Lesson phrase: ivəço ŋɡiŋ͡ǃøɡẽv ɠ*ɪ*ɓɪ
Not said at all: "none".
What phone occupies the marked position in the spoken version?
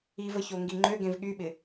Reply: y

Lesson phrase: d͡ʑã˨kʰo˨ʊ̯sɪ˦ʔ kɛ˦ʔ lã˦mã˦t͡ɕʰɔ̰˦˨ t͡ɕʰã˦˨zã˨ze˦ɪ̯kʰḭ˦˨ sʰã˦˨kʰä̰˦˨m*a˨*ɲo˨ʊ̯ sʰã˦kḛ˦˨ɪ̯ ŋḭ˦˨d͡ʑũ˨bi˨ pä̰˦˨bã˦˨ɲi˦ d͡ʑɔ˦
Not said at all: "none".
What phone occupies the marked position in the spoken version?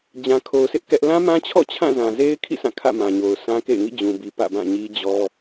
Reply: ã˨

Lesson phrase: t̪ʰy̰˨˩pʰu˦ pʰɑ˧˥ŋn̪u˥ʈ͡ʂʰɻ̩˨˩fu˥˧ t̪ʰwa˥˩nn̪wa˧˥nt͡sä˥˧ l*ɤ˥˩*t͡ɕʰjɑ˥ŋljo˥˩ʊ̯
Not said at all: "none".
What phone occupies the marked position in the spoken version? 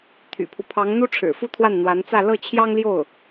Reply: ɤ˥˩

